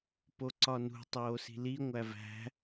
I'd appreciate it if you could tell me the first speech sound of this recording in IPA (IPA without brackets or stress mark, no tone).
p